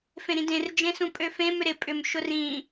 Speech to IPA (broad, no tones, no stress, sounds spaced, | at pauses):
f ẽ ɾ ĩ d ẽ r d͡ʒ ẽ s ũ pʼ ø f ẽ m ʏ ɾ ɪ pʼ ʏ m ʃ ʊ r ĩ